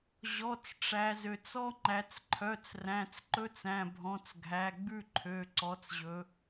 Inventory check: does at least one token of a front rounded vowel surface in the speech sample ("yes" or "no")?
yes